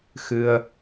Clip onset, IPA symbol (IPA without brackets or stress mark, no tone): x